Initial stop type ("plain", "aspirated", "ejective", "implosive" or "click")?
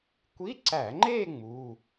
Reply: plain